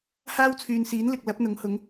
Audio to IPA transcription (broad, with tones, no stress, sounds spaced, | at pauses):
h aː˥ w t͡sʰ yː˨ n s iː˨˥ n l ɪ˨ k̚ l ɐ˨˥ p̚ n̪ ʊ˨˥ ŋ h ʊ˨˥ ŋ